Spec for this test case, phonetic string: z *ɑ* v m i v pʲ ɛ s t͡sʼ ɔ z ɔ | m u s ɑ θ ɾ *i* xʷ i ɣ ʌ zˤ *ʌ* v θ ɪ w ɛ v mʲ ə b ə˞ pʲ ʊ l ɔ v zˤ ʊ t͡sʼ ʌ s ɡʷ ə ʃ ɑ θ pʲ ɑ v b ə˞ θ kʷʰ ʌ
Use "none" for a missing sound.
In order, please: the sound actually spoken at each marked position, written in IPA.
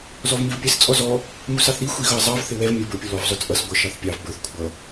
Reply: ɔ, i, ɑ

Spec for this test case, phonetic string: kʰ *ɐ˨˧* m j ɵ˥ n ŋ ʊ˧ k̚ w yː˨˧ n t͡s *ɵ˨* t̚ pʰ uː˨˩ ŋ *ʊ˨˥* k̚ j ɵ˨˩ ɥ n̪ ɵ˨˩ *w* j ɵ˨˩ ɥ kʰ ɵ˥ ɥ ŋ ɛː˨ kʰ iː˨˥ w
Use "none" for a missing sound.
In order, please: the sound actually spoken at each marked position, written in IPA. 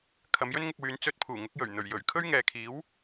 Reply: ɐ˨˧, ɵ˧, ʊ˨˥, ɥ

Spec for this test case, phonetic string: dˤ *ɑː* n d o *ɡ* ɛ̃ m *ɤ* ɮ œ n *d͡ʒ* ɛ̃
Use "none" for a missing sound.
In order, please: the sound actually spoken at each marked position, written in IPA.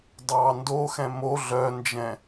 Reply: ɑː, x, o, d͡ʒ

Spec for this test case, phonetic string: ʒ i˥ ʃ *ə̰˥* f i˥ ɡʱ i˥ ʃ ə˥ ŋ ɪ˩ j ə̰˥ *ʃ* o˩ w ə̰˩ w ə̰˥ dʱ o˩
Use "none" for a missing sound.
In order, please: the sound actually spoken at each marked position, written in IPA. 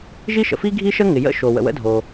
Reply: ə̰˩, ʃ

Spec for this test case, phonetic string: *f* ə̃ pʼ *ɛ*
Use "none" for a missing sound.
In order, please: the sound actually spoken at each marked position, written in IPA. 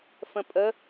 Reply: f, ə

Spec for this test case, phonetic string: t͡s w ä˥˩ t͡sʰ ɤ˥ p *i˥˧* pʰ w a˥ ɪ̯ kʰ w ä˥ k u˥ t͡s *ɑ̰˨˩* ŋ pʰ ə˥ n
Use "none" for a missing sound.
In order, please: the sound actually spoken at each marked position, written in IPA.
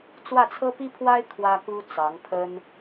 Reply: i˥, ɑ˧˥

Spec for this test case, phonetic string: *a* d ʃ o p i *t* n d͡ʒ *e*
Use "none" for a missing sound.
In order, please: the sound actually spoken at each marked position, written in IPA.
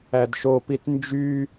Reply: æ, t, y

